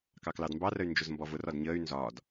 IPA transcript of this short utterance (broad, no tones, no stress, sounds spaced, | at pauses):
k ɑ k l ɑ d m b ɑ r ə y̯ n d͡ʒ ʊ z m b ɔ v ʊ r ɒ d ɲ əː y̯ n z ɒː d